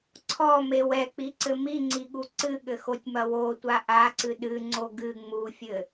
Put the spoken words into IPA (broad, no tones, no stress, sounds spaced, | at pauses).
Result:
ǀʰ ɔ m e w ɛ k͡p i ǀ ɘ m i ŋ͡ǀ i ɠ u ǀ ɨ ɠ ɘ x o tʲ m ɐ w o tʷ a ʔ a ǀ ɨ ɗ ɨ ŋ͡ǀ o ɡ ɨ ŋ͡m u fʲ ɘ